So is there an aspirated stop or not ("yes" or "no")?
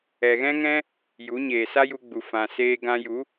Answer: no